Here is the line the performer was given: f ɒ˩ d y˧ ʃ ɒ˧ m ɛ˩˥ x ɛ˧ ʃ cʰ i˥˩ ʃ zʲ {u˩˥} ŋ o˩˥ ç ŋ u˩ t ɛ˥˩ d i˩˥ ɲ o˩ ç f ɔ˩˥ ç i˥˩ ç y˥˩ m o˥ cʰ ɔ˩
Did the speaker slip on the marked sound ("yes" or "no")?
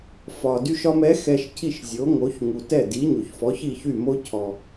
yes